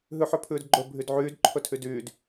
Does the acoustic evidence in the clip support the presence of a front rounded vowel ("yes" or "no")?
yes